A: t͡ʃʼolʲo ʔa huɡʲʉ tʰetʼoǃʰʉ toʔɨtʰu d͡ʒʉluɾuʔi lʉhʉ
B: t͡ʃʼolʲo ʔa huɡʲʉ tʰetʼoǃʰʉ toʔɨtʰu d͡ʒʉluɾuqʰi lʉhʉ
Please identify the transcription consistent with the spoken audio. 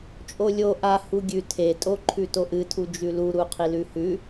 B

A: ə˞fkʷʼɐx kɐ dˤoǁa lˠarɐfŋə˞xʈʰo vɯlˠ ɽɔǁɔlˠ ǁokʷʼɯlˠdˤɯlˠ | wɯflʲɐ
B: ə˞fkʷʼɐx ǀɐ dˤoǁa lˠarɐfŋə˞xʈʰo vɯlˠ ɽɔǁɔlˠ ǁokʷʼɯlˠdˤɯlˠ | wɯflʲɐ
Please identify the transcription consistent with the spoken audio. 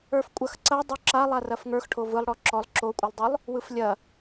B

